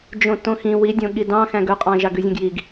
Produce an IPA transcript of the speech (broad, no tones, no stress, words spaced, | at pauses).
d͡ʒõtõxĩ widʲõ ɠidɑ̃xæ̃ɡ ɵqʼɑ̃ ʒɑɡʉzʲõɡjiɡ